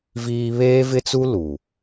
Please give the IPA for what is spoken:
viː˦ βeː˦vɪ˦t͡su˦ lu˨

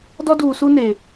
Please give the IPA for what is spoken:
dɔ˦duː˨su˦ne˨

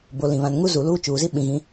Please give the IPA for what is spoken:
bo˨ lĩ˨βã˨nŋu˦zu˨ luː˦t͡ʃuː˨ zi˦ɓĩ˨ɣĩ˨˦

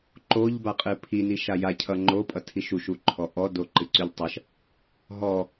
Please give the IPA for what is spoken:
ǃoʎbaqʼɨ pʰini ʃaja cʰʌŋ͡ǃopʼʌ tʰiʃuʃuǃʰɔ ʔɔ doǃɨǀyʎtˤʌʃ | ɦɔ

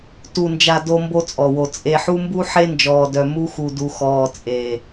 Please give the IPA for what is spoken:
tu˨nd͡ʒa˨ do˦mbo˦t͡sʼɔ˨wo˨ t͡sʼe˨ħu˦mbu˦ ħe˦nd͡ʒɔː˨dœ˨ mu˦xu˨ du˨ xɔː˨t͡sʼeː˨

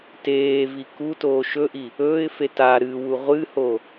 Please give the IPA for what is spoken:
teːvi kutoː ʃɵʔi | ɵːɪ̯fet a ɾɨwu ʁʷɨho

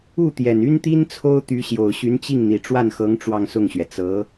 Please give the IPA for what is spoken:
u˥˩t̪jɛ˨˩n y˥nt̪i˥n t͡sʰo˥ʊ̯t̪y˧˥ ɕjo˨˩ʊ̯ɕy˧˥nt͡ɕi˥˩ŋn̪i˨˩ ʈ͡ʂwa˥˩nxɤ˧˥ŋ ʈ͡ʂwɑ˥˧ŋsʊ˥˩ŋɕɥɛ˩ t͡sɤ˧˥

